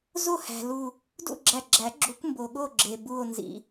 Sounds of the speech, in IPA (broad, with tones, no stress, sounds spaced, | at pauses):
z o˥˨ h æ̤˩ l u˧˩ | d ṵ˥˨ ɡ͡ǁ æ˧˩ ɡ͡ǁ æ˨˩˦ ɡ͡ǁ u˨˩˦ kʷ m b o˩ ɠ o˥˨ ɡ͡ǁ e˩ b u˧˩ o̯ n z ḭ˩